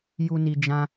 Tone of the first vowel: high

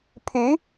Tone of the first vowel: rising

